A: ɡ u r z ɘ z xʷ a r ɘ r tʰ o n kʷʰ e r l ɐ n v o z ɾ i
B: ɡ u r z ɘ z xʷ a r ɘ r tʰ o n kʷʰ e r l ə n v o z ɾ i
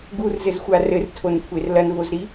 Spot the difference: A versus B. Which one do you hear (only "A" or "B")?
A